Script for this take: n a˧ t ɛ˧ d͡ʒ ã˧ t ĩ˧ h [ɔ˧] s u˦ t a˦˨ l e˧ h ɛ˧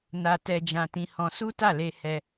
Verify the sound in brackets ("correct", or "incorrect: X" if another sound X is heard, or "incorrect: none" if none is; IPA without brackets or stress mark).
incorrect: ɔ̃˧